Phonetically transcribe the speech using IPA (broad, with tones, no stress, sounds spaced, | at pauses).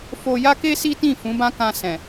f o˧ j a˦ k e˦ s i˦ t ĩ˦˨ f ũ˨˦ b ã˦ k ã˧ s ɛ̃˨